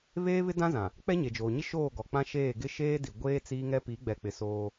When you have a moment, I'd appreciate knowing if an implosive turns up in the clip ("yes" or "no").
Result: no